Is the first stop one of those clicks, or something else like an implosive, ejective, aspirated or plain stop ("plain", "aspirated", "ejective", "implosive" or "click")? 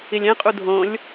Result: ejective